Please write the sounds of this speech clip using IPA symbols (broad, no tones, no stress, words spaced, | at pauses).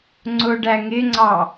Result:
ŋ͡ǀʊɖæ ŋɪŋ͡ǀɑ